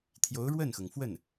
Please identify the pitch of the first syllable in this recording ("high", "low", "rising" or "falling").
rising